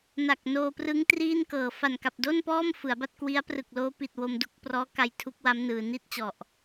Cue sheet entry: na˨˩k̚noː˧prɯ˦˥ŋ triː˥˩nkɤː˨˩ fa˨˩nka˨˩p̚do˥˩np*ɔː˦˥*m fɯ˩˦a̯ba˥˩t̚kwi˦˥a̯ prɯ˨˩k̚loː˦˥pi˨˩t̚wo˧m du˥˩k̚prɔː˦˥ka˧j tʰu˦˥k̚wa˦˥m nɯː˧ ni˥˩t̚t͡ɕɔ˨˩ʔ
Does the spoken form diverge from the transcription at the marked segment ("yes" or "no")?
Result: yes